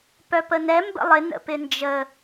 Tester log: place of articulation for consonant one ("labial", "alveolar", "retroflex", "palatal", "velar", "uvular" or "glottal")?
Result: labial